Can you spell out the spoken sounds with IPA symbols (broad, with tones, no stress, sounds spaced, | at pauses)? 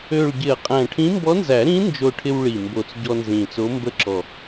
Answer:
ø˨˩ ɭ ɟ ɪ˨˩˦ ɐ̯ qʼ æ̃˨˩ ʈʰ ĩ˧˥ m b ɔ˧˥ n z æ˨˩˦ ɾ ĩ˧˥ n d͡ʒ o˧ ʈʰ ɪ˧ w ɭ i˨˩ m b o˨˩ t͡s ɟ ɔ˧ n z ĩ˨˩ t͡s o˧˥ m b ə˧ ǁ ɔ˨˩